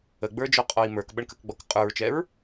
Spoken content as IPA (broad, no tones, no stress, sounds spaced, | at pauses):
ə ɡ͡b ə˞ d͡ʒ ɔ qʼ ɔ i̯ m ə˞ k ɓ ə ɳ k ə k ɡ͡b ɔ k qʼ ə˞ ɹ t͡ʃ ɛ ɹ